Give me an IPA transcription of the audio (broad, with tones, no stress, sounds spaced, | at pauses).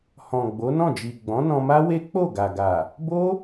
h ɔ̃˨ ɡ͡b o˨˦ n ɔ̃˦˨ d͡ʒ i˨ ɡ͡b ɔ̃˨˦ n ɔ̃˧ m a˦ w e˦ k͡p o˦˨ ɡ a˨ ɡ a˨ | b o˦